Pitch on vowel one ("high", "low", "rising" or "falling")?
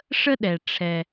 high